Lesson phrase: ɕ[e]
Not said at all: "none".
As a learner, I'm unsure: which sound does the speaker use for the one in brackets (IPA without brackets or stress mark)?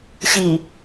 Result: i